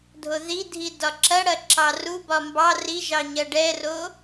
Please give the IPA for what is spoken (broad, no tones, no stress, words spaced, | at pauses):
dʱoðidʱi dɒǁɐɽɐ ǁɑrubɒ mbɑ riʒɑ ɲɐɖɛro